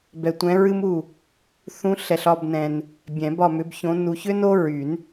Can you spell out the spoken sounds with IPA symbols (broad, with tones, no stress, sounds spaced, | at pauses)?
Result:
b ɛ˨ tʷ ɛ̃˨˦ ɹ ɨ˦ m u˦˨ | θ ũ˨˦ ɬ ɛ˨ ɬ ɒ˦˨ b n ɛ̃˨ n | bʲ ɛ̃˨˩˦ b ɒ˦˨ m ʏ˨˦ b ç õ˨˦ n u˨ ç ʏ˦ n o˦ ɹ y˨˩˦ n